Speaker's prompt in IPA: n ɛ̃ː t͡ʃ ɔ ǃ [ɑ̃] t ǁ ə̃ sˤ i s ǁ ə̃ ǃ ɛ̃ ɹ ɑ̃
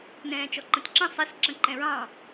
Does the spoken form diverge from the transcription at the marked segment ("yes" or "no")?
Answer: yes